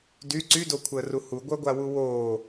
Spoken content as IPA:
d y ǀ y d o kʷʰ əː r u h u ɡʷ œ ɡʷ a w u w oː

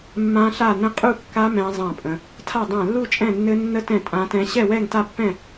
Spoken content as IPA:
mː ã˦˥ ɬ a˥˧ n ə̃˦˥ qʼ u˥˧ kː a˦˥ m ɛ̃˦˥ zˤ ã˥˧ pʼ ə̃˦˥ | tʰ a˥˧ dˤ ã˥˧ lː u˥˧ t͡ʃʼ ɛ̃˥˧ nː ɘ˦˥ nː ə˦˥ t ɛ̃˥˧ tʼ ã˦˥ t ɛ̃˦˥ ɕ ɛ˥˧ w ɛ˥˧ ŋ t a˥˧ pː ɛ̃˥˧

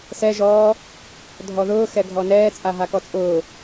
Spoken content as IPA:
s ɛ ʒ ɔ | dʱ ɔ ð ʊː x ɛ ɡʱ ɔ n ɛː t͡sʼ a ɦ a k ɔ t͡sʼ ʊː

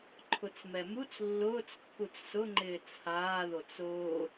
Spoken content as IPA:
ǃʰ ʊ t͡s m ɛ m u t͡s lː ʊː t͡s kː u t͡s s ʊ ŋ͡ǃ ɪː t͡sʰ aː ð o t͡s ʊː

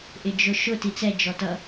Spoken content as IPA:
ʔ ɪ d͡ʒ ʊ ʃ ʊ t i t͡s ɛ d͡ʒ ɔ t ʌ

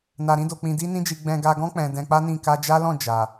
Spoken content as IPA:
n a˧ ɾ ĩ˦ d o˧ k͡p ĩ˧ d i˦ n ĩ˦ d͡ʒ i˧ ɡ͡b ɛ̃˧ ɡ a˧ ɡ ɔ̃˦ k͡p ɛ̃˧ d ɛ̃˧ k͡p a˦ n ĩ˦˨ k a˧ d͡ʒ a˦ l ɔ̃˦˨ d͡ʒ a˨

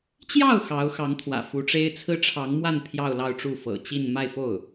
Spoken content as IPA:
t͡ɕ j ɑ˥˩ ʊ̯ x ɑ˧˥ ʊ̯ x ɑ˧˥ ŋ t̪ʰ w ä̰˨˩ f u˧˥ ʈ͡ʂ e˥ ɪ̯ t͡sʰ ɹ̩˥ ʈ͡ʂʰ ɑ˧˥ ŋ m w a˥˧ n pʰ j ɑ˥˧ ʊ̯ l ɑ˥˧ ʊ̯ ʈ͡ʂ u˥˩ f ɤ̰˨˩ t͡ɕ i˥˧ n m a˥˧ ɪ̯ f o˥˩ ʊ̯

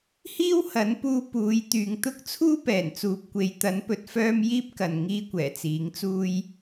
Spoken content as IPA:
h iː˥ w h ɐ˨˥ n p uː˧ p uː˨˧ j t̪ yː˨ ŋ t̪ ʊ˥ k̚ t͡sʰ uː˥ p ɛː˨˩ n t͡s uː˨ p̚ kʷ e˨ j t̪ ɐ˨˥ n p ɵ˨˥ t̚ f œː˥ m j iː˥ p̚ k ɐ˨ n ŋ iː˥ kʷ ɛː˨˩ t͡s iː˨˥ ŋ t͡s uː˥ j

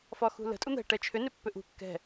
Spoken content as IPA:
f ɒ x ṳ l ə̤ tʼ u n̪ ɛ̤ ʈ ɛ t͡ʃʰ ʏ n ʏ pː ʏ ʔ ṳ kː ɛ̤

